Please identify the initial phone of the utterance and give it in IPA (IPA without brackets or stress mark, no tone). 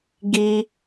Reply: ɡ